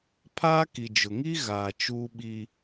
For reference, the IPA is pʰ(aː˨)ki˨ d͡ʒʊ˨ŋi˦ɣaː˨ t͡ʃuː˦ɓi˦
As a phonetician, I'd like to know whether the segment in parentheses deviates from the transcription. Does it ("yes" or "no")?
yes